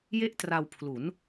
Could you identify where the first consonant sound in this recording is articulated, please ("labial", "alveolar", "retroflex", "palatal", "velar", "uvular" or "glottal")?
palatal